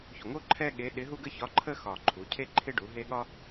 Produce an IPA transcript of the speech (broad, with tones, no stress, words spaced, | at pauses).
ço˨˩ŋo˦ ǃʰɛ˦ ɠe˨˥ɗɪ˨˥ ɦu˦ɡə˦çɒ˨˥ǃʰə˦ xɒ˨˩ǃʰu˩˧ cʰe˦ǃʰɪ˦ɖu˩˧ ɦe˦ ɠɒ˦